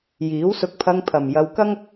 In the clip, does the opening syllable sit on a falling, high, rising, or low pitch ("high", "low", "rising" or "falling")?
rising